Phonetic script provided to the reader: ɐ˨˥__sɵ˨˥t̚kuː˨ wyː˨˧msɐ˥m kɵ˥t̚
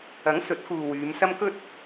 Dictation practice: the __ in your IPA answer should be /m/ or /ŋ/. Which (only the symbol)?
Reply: ŋ